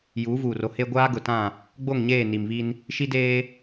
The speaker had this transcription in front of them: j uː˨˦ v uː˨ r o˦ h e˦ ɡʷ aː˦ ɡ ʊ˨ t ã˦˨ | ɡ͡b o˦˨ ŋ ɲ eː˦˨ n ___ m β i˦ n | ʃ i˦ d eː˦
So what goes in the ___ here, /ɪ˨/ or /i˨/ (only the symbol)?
i˨